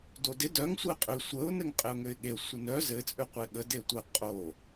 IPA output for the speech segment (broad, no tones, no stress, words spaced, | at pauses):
dodɪ dœŋ sʷɘɪ̯qʼø sʷəʊ̯ nɘŋqʼɘʊ̯ŋøɪ̯ɠeə̯ sʷɘnœ zɘ t͡sʼøqʷeɠə detʷə qʼo